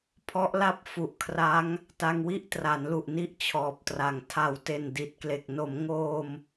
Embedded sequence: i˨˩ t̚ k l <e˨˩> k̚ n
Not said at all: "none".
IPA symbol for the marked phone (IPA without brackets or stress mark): e˨˩